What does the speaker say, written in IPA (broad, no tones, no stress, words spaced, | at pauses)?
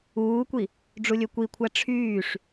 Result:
uːkʷi | ɖ͡ʐulʲøkʷikʷʰæ ʈ͡ʂʰyːʂ